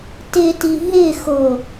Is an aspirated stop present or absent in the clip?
absent